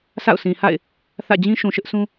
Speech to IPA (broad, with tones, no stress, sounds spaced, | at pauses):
sʰ a̰˦˨ ʊ̯ sʰ ĩ˨ h a̰˦˨ ɪ̯ | θ ä̰˦˨ d͡ʑ ĩ˦ ʃ ũ˨ ʃ ɪ˦ ʔ s ũ˦